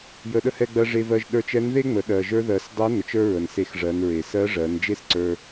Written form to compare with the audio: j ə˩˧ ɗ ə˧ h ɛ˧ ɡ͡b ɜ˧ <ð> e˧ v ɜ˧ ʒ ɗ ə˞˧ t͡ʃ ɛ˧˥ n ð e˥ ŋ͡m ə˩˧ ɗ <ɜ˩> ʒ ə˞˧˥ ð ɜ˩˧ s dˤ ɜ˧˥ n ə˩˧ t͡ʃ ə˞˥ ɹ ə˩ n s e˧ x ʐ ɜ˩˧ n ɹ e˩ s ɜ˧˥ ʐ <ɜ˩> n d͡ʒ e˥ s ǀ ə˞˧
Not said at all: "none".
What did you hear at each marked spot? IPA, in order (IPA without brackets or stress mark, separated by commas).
ʐ, ɜ˩, ɜ˩˧